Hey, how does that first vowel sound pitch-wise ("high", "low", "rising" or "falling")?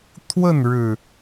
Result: falling